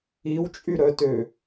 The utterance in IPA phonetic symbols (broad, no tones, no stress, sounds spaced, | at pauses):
i w t͡ʃʼ y ɾ œ t ø